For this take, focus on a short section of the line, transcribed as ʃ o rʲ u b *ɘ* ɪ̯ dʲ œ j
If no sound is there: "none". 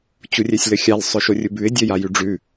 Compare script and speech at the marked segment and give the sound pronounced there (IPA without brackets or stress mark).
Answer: ʉ